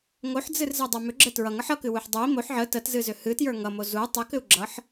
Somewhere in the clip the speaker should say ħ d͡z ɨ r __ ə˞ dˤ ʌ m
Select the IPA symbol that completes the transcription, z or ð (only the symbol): z